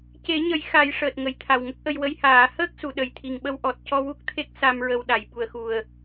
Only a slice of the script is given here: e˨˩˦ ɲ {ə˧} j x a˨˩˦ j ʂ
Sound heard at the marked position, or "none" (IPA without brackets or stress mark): ə˨˩˦